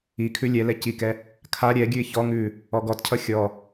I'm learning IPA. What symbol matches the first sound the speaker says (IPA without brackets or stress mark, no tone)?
i